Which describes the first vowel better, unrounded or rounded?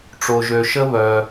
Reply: rounded